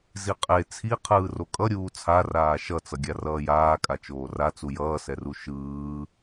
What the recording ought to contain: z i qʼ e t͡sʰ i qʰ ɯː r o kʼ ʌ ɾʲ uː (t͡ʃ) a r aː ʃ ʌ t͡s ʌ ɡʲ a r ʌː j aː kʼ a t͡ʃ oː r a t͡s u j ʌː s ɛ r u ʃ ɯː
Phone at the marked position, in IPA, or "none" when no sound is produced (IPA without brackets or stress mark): t͡sʰ